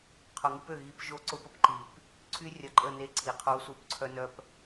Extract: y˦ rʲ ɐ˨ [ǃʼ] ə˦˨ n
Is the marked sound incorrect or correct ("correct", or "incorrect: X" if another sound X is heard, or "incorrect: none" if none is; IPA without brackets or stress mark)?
correct